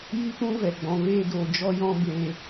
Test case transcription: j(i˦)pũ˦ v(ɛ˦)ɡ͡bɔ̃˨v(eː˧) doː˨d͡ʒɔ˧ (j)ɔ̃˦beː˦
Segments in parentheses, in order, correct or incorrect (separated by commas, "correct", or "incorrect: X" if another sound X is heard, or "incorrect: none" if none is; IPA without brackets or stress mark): correct, incorrect: ɛ˨, correct, correct